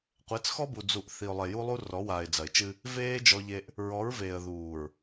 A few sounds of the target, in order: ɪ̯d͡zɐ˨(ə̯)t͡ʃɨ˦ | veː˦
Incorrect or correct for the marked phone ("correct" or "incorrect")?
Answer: incorrect